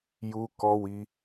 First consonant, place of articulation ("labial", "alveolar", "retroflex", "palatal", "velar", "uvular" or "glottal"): palatal